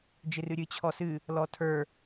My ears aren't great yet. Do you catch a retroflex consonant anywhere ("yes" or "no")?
no